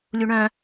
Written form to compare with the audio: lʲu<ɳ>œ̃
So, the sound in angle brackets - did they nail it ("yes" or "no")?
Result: yes